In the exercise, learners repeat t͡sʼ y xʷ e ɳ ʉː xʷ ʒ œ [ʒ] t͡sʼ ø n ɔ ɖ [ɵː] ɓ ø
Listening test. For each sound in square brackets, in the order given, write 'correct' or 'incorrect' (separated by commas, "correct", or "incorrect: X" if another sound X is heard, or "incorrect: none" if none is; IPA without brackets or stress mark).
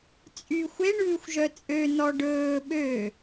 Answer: incorrect: none, correct